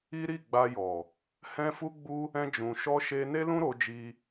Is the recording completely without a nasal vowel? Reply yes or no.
no